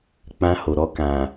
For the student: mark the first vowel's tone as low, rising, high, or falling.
high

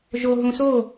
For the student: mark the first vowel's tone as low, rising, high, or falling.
low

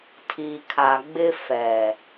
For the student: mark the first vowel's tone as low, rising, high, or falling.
low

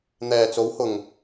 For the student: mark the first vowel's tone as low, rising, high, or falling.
low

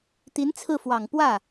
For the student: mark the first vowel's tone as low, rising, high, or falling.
rising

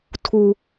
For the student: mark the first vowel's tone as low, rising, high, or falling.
high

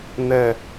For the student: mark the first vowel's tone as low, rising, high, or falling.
low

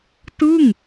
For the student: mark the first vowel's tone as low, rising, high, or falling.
falling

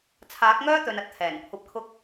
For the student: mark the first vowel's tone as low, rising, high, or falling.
rising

